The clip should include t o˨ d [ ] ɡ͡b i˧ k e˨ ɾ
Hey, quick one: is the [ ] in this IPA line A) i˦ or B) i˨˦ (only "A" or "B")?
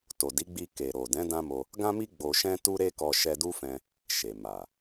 B